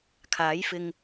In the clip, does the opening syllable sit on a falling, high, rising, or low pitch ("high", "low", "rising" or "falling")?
rising